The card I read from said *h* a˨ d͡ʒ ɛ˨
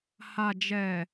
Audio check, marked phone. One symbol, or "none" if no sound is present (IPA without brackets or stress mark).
h